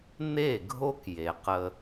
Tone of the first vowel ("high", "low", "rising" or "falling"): falling